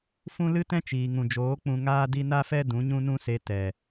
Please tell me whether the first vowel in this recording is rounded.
yes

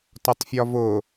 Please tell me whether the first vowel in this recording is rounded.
yes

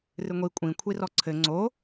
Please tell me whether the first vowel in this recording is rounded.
no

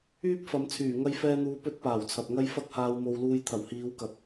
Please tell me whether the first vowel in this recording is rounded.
yes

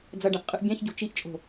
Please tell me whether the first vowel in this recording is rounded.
no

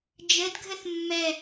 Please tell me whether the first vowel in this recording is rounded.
no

